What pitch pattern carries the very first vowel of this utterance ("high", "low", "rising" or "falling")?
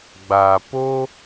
low